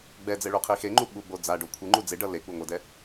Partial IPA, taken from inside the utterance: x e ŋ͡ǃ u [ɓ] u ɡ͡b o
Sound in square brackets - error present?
no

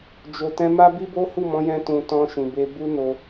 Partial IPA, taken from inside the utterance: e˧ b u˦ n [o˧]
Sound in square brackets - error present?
no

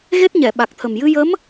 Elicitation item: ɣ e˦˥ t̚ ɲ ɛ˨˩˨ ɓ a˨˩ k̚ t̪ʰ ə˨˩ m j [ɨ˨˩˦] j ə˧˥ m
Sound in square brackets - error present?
yes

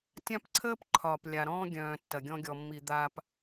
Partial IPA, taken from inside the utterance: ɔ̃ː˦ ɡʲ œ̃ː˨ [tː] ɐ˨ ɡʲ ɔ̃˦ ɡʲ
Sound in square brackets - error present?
no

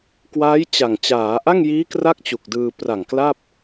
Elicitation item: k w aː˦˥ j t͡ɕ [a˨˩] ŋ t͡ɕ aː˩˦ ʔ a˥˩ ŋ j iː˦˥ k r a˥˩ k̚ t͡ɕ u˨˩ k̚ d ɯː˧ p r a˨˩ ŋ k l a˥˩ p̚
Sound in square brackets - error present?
no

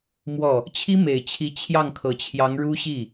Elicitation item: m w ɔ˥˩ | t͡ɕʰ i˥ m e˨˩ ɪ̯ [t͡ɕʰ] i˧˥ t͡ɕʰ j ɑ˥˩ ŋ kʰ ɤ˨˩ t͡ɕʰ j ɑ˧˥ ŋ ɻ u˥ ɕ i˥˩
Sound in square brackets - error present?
no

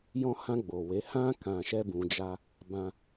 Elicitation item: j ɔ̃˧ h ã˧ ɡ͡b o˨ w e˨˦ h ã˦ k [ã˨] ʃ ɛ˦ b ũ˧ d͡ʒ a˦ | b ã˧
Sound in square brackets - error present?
yes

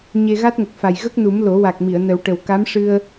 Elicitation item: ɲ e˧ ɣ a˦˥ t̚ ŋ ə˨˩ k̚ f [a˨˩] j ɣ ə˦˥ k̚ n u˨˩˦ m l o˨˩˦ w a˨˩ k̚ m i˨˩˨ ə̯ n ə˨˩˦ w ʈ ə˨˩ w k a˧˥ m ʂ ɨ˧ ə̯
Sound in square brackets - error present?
no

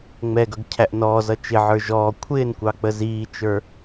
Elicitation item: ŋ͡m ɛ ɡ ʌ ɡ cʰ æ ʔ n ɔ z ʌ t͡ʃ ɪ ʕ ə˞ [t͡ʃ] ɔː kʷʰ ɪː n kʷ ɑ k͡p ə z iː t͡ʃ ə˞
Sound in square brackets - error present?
yes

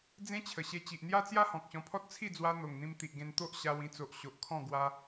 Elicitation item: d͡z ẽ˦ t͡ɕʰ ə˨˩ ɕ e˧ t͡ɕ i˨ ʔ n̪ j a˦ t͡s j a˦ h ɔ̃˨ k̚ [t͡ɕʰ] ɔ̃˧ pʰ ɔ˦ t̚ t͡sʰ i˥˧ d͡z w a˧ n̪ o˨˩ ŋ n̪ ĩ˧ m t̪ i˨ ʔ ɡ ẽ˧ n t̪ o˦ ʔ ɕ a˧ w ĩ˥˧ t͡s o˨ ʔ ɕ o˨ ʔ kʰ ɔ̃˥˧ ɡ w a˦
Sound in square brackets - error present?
yes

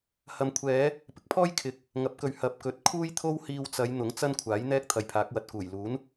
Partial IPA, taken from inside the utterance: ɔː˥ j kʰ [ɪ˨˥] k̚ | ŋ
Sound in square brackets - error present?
no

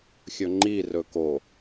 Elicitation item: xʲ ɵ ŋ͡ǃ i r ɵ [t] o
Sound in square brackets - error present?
yes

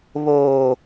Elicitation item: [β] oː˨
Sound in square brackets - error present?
no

